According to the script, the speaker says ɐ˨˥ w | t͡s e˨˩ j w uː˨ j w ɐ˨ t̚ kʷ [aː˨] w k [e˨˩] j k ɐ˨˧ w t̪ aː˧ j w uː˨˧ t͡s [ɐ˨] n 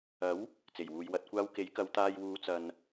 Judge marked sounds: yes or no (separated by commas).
no, no, yes